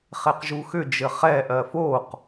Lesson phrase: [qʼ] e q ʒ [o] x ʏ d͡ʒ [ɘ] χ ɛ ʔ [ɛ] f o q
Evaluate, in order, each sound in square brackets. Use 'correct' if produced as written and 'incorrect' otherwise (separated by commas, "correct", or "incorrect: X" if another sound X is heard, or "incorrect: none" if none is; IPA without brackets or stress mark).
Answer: incorrect: χ, incorrect: u, correct, incorrect: ɜ